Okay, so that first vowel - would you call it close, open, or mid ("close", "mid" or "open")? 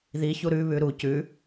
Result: close